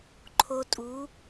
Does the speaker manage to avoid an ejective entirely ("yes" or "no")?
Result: no